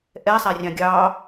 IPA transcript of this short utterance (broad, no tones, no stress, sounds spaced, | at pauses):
ʔ ɛ sˤ æ rʲ ɑ̃ ɡʲ ɑː